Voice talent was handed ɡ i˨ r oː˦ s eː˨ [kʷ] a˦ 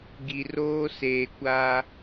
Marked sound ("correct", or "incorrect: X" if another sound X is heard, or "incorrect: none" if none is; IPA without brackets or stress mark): correct